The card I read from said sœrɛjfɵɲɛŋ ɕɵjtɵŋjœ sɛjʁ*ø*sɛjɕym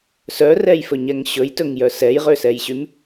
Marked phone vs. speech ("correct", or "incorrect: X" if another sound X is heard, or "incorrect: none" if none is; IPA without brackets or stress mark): correct